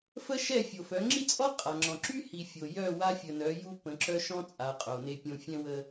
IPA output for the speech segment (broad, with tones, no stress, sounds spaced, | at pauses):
f ə˦ ʃ ɛ˦˨ fʲ o˨ f œ˨˦ ŋ͡ǁ i˦ t͡sʼ ɔ˦ qʼ a˨ ŋ͡ǁ ɔ̃˨ ǁ y˦ h i˨ fʲ o˨ j œ˦˨ w a˦ fʲ ə˨ n œ˨˦ j u˦ p ə̃˨˦ ǁ œ˦ ʃ ɔ̃˦ t͡sʼ a˨ qʼ o˨ n e˦ pʲ õ˦ fʲ ɛ̃˦ w ə˦